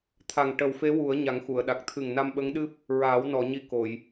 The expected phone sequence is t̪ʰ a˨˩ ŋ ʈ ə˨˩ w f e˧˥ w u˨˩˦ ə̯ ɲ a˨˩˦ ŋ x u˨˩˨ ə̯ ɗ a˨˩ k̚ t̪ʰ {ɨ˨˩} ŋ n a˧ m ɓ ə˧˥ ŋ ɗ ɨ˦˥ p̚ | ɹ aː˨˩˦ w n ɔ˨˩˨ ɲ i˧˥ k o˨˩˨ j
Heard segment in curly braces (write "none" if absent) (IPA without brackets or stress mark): ɨ˨˩